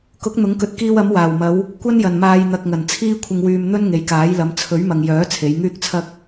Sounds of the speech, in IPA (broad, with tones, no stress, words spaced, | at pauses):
kʊ˨˥k̚ n̪ʊ˨˥ŋkɵ˨˥t̚kiː˧w ɐ˨˧m waː˨˩wmɐ˨˧w | kʷɐ˥njɐ˨˩nmaː˨j n̪ɐ˨k̚ŋɐ˨˩n t͡sʰiː˧kʷʰɪ˨ŋwyː˨m n̪ɵ˥nŋe˨jkaː˨˥jlɐ˨˧m t͡sʰɵ˨˥ɥmɐ˨ŋjœː˨˥ t͡sʰe˨˧jŋyː˥k̚t͡sʰɐ˥k̚